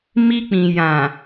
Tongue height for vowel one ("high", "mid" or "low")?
high